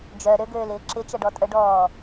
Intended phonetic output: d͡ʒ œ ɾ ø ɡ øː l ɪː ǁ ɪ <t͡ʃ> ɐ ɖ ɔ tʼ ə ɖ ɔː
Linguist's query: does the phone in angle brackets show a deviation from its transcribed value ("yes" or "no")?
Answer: no